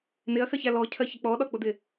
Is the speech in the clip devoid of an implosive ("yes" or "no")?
no